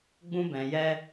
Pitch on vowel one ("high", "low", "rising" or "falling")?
high